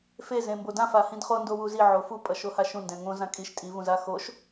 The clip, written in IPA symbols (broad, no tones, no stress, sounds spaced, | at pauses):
f e z ẽ m b o d ã f a h ĩ d χ o n d o w u z i ʕ o f u pʼ ʌ ʃ o h a ʃ ũ n d ɛ̃ ŋ õ z ã kʼ i ʃ tʼ i v ũ z a x o ʃ